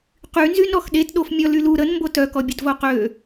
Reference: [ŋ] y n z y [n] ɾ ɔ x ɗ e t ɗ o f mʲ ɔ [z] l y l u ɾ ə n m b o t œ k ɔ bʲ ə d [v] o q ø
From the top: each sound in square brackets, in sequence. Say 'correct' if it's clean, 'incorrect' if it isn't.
incorrect, correct, incorrect, correct

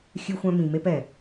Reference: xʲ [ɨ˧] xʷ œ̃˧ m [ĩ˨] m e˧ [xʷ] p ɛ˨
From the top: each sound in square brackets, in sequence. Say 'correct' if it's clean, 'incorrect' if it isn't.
correct, correct, incorrect

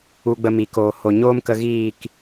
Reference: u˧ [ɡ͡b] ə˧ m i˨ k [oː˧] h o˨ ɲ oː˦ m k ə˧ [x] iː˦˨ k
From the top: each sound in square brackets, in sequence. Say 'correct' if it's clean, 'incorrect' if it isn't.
correct, incorrect, incorrect

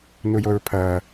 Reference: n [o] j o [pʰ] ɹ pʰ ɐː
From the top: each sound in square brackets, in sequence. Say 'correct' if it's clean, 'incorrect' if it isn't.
incorrect, incorrect

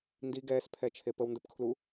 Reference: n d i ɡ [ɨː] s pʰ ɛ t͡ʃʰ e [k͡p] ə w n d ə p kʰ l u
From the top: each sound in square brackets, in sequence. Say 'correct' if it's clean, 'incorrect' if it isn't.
incorrect, incorrect

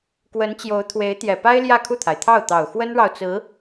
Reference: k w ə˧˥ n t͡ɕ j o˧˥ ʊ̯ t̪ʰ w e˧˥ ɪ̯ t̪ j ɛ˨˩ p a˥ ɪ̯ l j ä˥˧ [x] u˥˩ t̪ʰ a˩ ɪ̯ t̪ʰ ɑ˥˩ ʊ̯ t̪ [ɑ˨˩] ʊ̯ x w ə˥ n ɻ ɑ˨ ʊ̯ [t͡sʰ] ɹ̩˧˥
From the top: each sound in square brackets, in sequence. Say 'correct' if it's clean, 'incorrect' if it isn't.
incorrect, correct, incorrect

